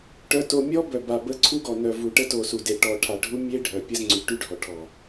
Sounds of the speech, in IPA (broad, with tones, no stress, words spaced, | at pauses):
ʈœ˨to˨ mʲɔ˦ bœ˨ba˨ bə˦ ǀʰu˦ɡɔ˨nœ˨vu˨ ʈə˦to˨su˨de˨ ʈɔ˨ʈʰa˨ɖʱu˦ mʲe˦ ɖʱœ˨pʲə˦z ŋ͡ǀy˨ʈy˦ɖʱɔ˨ ʈʰɔ˨